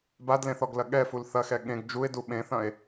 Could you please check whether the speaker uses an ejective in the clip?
no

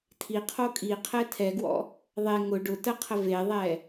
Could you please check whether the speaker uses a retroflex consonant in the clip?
yes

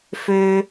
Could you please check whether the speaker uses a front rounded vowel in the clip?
yes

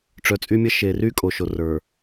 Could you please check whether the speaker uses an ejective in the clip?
yes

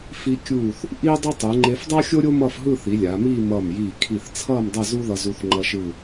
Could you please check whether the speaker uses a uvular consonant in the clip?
no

